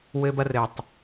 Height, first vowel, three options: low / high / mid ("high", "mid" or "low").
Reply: mid